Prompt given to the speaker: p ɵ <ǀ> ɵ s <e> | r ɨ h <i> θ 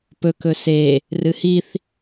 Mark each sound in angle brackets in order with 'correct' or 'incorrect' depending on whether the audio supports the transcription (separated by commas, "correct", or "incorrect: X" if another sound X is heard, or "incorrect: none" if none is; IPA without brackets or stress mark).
incorrect: k, correct, correct